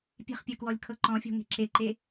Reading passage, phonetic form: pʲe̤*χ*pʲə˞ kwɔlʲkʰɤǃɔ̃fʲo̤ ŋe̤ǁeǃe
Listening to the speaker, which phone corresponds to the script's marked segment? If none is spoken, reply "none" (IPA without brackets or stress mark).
χ